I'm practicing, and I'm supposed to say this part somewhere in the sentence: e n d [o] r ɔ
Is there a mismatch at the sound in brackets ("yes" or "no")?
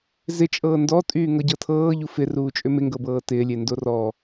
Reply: no